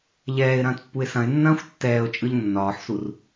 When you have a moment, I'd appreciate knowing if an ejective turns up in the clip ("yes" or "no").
yes